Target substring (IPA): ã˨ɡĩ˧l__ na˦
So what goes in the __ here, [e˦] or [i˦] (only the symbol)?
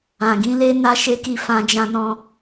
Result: e˦